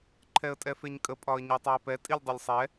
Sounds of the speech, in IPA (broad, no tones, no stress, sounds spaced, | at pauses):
ǃʰ ɛ ə̯ tʼ ɛ f e ɲ kʼ ə pʼ ɒ ə̯ ɲ œ tˤ ɛ ə̯ p ɛ tʼ i lʲ dˤ ɛ lʲ sˤ ɛ